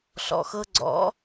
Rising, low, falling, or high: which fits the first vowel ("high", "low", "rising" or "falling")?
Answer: low